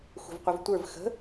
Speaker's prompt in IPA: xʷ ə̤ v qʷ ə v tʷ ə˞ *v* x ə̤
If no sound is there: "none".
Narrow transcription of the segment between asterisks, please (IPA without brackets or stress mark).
v